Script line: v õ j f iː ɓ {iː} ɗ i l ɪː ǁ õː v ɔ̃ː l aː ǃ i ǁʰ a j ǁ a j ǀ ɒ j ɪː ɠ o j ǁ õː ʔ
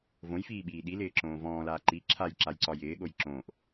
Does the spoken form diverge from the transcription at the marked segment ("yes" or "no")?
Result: no